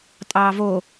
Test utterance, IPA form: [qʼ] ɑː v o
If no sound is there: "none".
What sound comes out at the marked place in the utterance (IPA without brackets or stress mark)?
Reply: tʼ